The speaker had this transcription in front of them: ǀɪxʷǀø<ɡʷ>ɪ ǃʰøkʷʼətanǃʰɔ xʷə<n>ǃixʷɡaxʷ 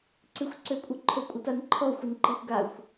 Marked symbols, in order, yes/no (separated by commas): no, yes